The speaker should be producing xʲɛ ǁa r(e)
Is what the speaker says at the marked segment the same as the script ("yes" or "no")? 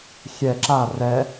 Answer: no